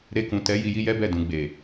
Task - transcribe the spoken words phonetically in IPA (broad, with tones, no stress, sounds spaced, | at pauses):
ɾ e˧ k ũ˨ t ɛ˨˦ j i˧ j i˦ j ɛ˦ b ɛ˦˨ d ũ˨ ɡ͡b e˨